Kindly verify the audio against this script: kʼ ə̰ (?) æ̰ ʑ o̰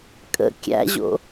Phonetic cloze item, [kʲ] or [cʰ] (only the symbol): kʲ